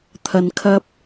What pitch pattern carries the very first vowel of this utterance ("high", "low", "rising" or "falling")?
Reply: low